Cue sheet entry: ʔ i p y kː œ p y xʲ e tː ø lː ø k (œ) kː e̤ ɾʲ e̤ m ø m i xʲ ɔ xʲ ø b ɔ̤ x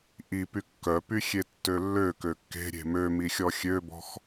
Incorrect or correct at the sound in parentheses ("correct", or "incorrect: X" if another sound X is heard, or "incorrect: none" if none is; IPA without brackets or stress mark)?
incorrect: ø